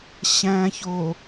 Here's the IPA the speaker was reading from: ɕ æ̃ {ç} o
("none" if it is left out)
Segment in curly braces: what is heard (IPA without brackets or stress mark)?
ç